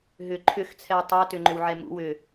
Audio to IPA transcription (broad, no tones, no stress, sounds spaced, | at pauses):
ɦ ʏ ǃʰ ʏ x t͡sʰ ɛ w tˤ ʏ ɐ̯ t ʏ ŋ͡ǃ ʏ w ʕ ɛ m ṵ w ʏ